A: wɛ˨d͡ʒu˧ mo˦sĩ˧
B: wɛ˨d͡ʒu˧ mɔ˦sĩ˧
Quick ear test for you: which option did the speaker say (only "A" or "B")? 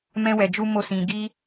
A